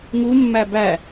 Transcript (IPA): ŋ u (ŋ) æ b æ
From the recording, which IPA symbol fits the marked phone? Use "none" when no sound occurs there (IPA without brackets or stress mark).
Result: mː